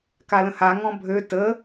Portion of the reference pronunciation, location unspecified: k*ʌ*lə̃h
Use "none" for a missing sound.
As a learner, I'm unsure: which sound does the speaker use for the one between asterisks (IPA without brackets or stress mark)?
a